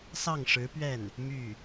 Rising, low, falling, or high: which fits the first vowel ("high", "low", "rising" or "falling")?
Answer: falling